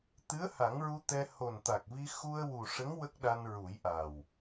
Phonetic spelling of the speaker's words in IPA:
t̪ɨ˧˥ə̯ha˨˩˦ŋɹu˧ t̪ɛ˧ ho˨˩nt̪a˨˩k̚vi˧ xu˧ə̯ wu˨˩ʂə˧˥ŋ wə˦˥k̚ɗa˧n ɹu˨˩˦jʔa˨˩w

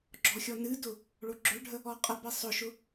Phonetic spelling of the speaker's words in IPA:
ɡ͡ǁɔxʲɔnɨdʊ | ɭoɡ͡ǁøɖʱə | ɔqʼəbi sˤʊʃʊ

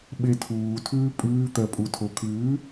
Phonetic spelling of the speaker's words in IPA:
ɓetʰuː tʰʉːpʼʉː t̪ɜpʼutʰokʰʉː

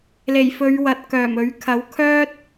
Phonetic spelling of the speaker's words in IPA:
le˨˩jfɵ˨˧ɥwɐ˨t̚ kœː˨˩mɵ˨˥ɥ kʰɐ˨˥w kʰœː˥t̚

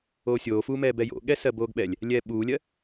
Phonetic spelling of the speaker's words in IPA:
oːsʲoːfuːmɛː bɛjo̰ɠɛ sɜboːɡɓɛlʲ | lʲɛːɓuːlʲɜ

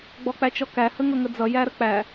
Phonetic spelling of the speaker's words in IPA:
ɡ͡bɔk͡pæt͡ʃɔkæ həŋʌŋəd͡zʌ jæɾək͡pæ

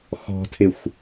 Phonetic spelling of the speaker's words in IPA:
xɔ̤tʰɪxʷ

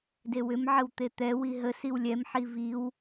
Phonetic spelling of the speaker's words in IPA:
dewʏm ʕəwt̪et̪ɛ wiɦə siwlʲɛm ħiviw

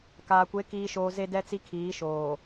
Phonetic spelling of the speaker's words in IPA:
kaː˨kʷe˨˦ kiː˨ʃoː˨ ze˦dɛ˦t͡si˦kʰiː˨˦ ʃoː˨

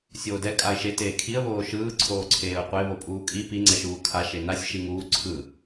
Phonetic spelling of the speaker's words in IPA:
sʲoːdɛ kʼaɪ̯ʃe teːkʰiə̯ βoːʃɯː ǀʰoːǀʰeːʊ̯qʷe βopʼuːkʼi pi ŋ͡ǀɛʃuːkʰa ʃenasʲ ʃiŋuː ǀʰɯ

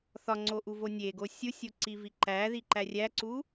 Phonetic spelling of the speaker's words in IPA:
θɒŋ͡ǀoʔuvo nʲeɡo sʲusʲoǀivi ǃæðiǃæ rʲæǀu

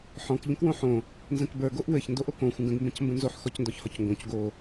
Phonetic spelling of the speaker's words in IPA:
ħɔ̃k ʎə̃kwõħõ | nzə̃kbə˞ ɡoʔwɘç ndoʔokõ xʷə̃ɡə̃ɡ mbə̃cmbə̃nzoħ xɔcndɔçhɔcŋɡõc ɡo

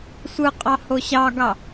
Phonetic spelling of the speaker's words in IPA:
sʷɯqʼɑ hoɕɑɡɑ

